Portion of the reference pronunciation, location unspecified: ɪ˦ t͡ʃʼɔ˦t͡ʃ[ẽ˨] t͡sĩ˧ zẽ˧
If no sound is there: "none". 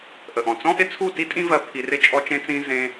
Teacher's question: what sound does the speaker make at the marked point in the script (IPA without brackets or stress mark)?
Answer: ẽ˦